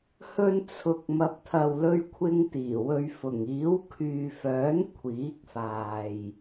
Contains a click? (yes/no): no